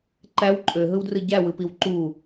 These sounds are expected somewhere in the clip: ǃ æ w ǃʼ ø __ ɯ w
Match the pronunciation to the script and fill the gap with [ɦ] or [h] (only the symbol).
ɦ